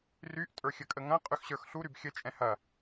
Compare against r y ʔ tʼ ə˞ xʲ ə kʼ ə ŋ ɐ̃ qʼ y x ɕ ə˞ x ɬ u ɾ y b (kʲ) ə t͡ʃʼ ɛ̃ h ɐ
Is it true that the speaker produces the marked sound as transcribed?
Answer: no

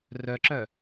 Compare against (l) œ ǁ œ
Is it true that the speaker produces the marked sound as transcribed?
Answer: no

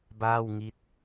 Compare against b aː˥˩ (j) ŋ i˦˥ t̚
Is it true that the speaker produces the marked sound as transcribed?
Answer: no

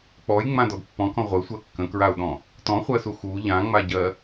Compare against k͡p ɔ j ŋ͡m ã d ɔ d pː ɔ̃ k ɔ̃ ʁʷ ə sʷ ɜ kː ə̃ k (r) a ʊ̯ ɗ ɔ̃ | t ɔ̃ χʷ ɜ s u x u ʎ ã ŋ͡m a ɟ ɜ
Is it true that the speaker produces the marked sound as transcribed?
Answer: no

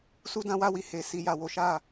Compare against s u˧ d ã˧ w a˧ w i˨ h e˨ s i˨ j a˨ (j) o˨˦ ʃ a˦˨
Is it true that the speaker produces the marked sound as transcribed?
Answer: no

